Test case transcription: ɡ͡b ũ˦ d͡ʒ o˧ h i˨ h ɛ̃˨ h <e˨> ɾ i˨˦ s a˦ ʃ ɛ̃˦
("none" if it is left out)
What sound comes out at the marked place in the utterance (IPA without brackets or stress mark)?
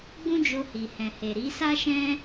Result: e˨